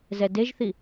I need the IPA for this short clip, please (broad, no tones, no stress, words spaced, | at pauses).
zɛdeʒθi